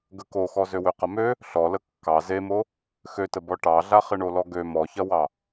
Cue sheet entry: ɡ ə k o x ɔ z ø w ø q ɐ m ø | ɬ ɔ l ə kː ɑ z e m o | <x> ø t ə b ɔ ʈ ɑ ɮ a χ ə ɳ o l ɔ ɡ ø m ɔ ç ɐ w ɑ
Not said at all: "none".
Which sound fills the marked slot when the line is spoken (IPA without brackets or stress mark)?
x